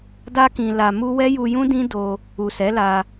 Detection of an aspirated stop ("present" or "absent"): absent